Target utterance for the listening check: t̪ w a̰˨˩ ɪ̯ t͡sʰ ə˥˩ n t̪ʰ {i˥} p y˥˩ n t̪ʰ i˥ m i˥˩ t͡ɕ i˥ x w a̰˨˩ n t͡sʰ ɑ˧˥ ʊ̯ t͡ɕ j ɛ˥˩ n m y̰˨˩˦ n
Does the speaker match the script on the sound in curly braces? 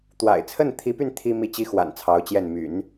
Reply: no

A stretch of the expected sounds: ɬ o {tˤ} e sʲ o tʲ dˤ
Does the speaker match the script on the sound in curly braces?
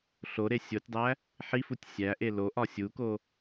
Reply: no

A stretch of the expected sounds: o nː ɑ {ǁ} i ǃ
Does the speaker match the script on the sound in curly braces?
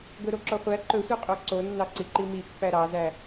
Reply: no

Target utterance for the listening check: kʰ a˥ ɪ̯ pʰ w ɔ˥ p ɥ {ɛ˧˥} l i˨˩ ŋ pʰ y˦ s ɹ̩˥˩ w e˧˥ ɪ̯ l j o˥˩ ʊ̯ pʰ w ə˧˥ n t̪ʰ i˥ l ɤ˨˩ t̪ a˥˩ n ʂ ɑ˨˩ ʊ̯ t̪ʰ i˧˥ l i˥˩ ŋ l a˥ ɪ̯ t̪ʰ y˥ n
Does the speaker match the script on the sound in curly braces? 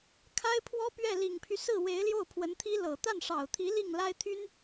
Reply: no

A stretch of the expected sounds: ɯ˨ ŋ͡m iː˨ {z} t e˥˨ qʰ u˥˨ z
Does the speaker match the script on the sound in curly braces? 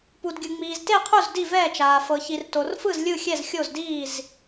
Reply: yes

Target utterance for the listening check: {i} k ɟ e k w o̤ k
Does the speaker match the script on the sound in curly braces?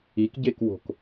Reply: yes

